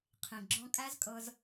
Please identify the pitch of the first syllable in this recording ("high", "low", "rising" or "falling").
low